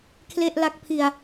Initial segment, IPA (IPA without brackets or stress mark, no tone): kʰ